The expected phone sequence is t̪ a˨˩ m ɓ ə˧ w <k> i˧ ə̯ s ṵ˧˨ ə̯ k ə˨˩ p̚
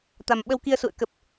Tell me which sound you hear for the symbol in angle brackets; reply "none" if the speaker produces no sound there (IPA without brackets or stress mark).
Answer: k